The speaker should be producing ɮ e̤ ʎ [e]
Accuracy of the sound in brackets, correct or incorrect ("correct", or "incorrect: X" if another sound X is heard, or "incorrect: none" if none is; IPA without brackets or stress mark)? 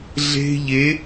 correct